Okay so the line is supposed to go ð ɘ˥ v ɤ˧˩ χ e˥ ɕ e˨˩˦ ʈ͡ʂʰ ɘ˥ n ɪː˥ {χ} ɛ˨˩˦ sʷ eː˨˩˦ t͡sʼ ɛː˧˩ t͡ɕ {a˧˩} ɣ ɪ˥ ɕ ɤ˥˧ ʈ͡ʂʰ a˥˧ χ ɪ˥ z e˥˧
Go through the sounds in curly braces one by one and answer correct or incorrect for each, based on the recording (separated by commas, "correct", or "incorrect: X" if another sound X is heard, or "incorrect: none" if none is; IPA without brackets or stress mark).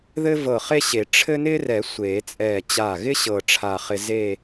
incorrect: r, correct